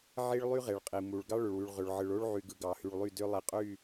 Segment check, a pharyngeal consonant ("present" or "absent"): present